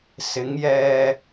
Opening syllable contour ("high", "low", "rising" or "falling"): rising